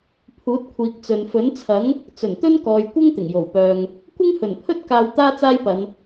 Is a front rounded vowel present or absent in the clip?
present